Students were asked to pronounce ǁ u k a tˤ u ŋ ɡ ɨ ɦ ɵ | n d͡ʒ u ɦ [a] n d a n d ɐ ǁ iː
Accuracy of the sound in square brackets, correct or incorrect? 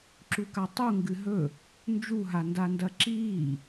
correct